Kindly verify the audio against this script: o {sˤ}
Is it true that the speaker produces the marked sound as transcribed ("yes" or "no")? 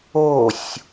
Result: no